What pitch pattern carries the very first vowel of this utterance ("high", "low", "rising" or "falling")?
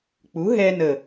rising